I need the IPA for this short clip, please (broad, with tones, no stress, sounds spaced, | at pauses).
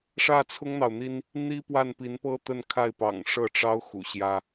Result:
ʂ ä˥˩ t͡sʰ ʊ˥ ŋ n̪ ɑ˨ ʊ̯ n̪ i˥ n | n̪ i˥ p w a˥˩ n p i˧˥ n p ɤ˥ t̪ ə˥˧ n kʰ a˥˩ ɪ̯ p ɑ̰˨˩ ŋ ʂ ɤ˥˩ ʈ͡ʂ ɑ˥ ʊ̯ x ṵ˨˩ ɕ j ä˥